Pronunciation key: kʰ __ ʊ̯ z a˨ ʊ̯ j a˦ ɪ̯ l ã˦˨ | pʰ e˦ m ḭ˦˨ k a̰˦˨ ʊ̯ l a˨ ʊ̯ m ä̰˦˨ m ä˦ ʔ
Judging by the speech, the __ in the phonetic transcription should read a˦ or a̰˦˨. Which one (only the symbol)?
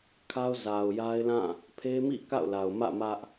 a˦